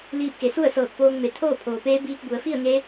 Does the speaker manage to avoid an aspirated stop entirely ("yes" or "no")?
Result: no